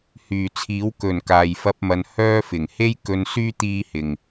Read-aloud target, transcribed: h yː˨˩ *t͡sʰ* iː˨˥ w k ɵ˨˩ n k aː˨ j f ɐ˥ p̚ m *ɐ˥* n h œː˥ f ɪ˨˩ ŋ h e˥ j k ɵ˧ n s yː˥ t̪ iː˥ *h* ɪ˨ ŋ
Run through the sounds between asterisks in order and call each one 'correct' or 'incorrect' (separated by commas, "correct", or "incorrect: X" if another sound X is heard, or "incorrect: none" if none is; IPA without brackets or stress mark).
correct, incorrect: ɐ˧, correct